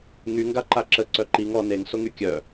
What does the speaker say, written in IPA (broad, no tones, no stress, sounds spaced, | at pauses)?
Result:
ŋ y ŋ ɡ a ǃ a ǁ ə ǀ œ ǃ i ŋ ɔ n e ŋ s o ŋ y kʲ œ